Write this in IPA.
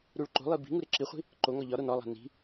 ɾuɭǃo̤lˠi bi̤ŋu ɾeǁiχʷi̤ | ǃoŋɒ ʎɒɾon ɒlˠæ̤ ni̤

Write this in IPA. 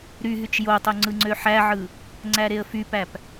ɾyɦyt͡ʃ jotˤo ŋ͡ǀɯŋ͡ǀøħæʕɯ | ŋ͡ǀæɾeə̯fypæp

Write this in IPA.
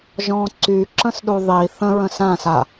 ʒɔ̃ːǀy ǁə̃sɗuðˤiːθ ə̃ ɹə̃sãːs a

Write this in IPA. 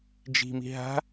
d͡ʒi̤mi̤ ɦa̤

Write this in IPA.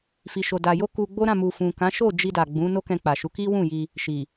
fi˨ ʃo˨da˨ jo˧ ku˧ɡ͡bo˦ɾã˦˨ mu˨fũ˨kã˨˦ ʃo˦˨d͡ʒi˧da˨ ɡ͡bũ˨˦no˦kɛ̃˧ k͡pa˨ʃu˨˦ki˦ wũ˦˨ji˧ | ʃi˨

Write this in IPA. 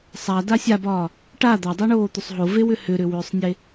sˤada sʲabɒː | ʈa d̪adˤɯɳoː t̪ʏsˤɦovewʏ hʏɾʏwʏːsˤnʲe

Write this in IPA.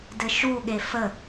dɘʃu ɠefə

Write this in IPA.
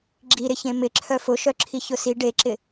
ɡ͡ǁiɾɪçẽ mɪǁʰœ fʊʃœǁʰi çʊsi ɖeǁɪ

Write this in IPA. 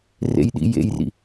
rḛjɗḭjḛjrḭ

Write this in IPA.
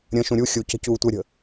ɾʲə̃ʃũ ɾʲu xʲucə̤ cuːtʷɛɾʲə̤

